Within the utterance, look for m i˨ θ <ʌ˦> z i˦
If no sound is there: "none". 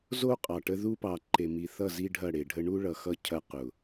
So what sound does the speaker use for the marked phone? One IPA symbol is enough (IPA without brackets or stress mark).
ʌ˦˨